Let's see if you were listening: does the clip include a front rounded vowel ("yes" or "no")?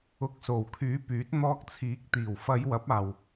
yes